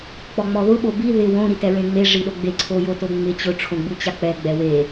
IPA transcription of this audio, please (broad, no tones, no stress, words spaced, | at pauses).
k͡pɔŋ͡mɔðʊ ɓobi ðɪ wõ ɾitɛɹẽŋ͡me ʐiɗoɡ͡be ǀʰojotoŋ͡mɪ t͡ɕʊ ʈ͡ʂʰõɡ͡but͡ɕak͡pɛ ɡ͡bɛwe